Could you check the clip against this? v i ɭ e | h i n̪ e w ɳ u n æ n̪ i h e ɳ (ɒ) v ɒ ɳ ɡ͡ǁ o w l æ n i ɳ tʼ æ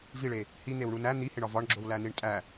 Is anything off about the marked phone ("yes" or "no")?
no